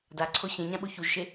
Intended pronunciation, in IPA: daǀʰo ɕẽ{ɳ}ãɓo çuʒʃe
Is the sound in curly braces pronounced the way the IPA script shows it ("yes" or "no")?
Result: no